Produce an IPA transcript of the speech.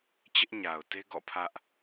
t͡ɕɪ˦ʔɲa˨ʊ̯te˦ ɡɔ̰˦˨pʰä˦ʔ

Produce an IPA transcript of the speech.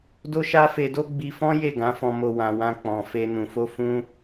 do˦ʃa˦fe˧do˦ ɡ͡bi˧fɔ̃˦ je˦˨ɡã˨˦fɔ̃˧mo˧ wã˨wã˧ k͡pɔ̃˨ fe˧ nũ˨fo˧ fũ˦

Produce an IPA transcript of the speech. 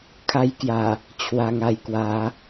kʰa˧jkja˨˩ | t͡ɕʰwa˨˩ŋa˨˩jkwa˨˦

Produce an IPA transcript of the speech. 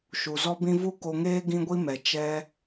ʃu˨zɔ˦bĩ˦ vu˦ko˧ŋeː˦ ɡĩ˦ɡʷi˦mɛ˨ t͡ʃɛ˧

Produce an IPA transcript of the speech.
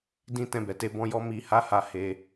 dĩ˦ tɛ̃˦˨bɛ˨˦te˦bɔ̃˦ jɔ˦mi˧ha˦ha˧ he˧

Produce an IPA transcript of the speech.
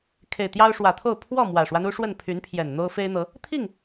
kʰe˨˩ɪ̯t̪jɑ˦ʊ̯ ʂwä˨˩t̪ʰo˥˨ʊ̯ pʰwɔ˥˨ mwä˨˩ʂwa˦nu˦ʂwə˥˨n pʰy˨˦npʰjɛ˨˩n n̪o˦ʊ̯fe˦ɪ̯n̪ɤ˨˦ | t̪ʰi˥˨ŋ

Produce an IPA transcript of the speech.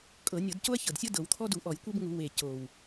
kʼɤ˧˩˧nʲɤ˧˩˧d co˦ɐ̯çɤ˨˩dsʲɤ˦ dɤ˧˩˧wt̪ʰɔ˦du˧˩˧ ʔɔ˧˩˧j kʷe˦bŋu˧˩˧ we˨˩ co˨˩w

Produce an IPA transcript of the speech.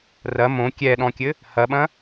rɐ mõ kʲɛɗɔ̃kʲɘ | hɐɓɐ̃

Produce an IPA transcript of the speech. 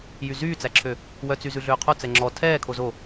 jyzyːt͡sæǁʰø | wœt͡sy zʉɮøːqʰo t͡sɛŋ͡ǁɔ tʰɛːkʰo zo

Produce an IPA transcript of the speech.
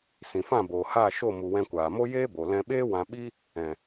sĩ˨fã˦˨boː˨haː˦˨ ʃo˦˨mu˨wɛ̃˧ kʷaː˨mo˦ jeː˦bo˨ lɛ̃˧ɓeː˦wã˧ɓi˦ | ɛ̃˨

